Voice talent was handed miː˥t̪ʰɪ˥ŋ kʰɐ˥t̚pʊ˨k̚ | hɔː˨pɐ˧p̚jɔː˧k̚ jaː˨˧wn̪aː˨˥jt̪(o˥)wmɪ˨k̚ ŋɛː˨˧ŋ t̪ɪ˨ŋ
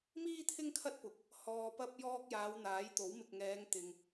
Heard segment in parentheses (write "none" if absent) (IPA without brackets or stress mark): o˨˥